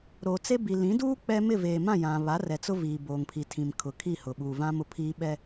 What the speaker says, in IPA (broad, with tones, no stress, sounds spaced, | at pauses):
ɾ oː˨ t͡s e˦ b i˨ l ĩ˨˦ d uː˦ k͡p ɛ˦ m ɪ˦˨ v eː˨ m ã˦˨ j ã˨ β a˨˦ r ɛ˨ t͡s ʊ˦ v iː˨ b oː˨ ŋ pʰ i˨ tʰ ĩ˨ m kʰ ʊ˨ kʰ i˦˨ h ʊ˨ ɓ uː˨ v ã˦ m ʊ˨ pʰ iː˦ ɓ ɛ˦